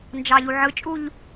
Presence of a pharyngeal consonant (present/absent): present